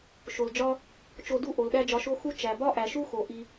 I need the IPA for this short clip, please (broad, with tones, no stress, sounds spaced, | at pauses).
ʃ o˨ l d͡ʒ ɒ˦ | t͡ʃ o˧ d u˦˨ ʔ o˨ l ɗ æ˦ d͡ʒ ɒ˧ ʃ o˦ x u˦ t͡ʃ æ˨ b ɒ˦ ʔ æ˨ ʃ u˦ x o˨ ʔ i˧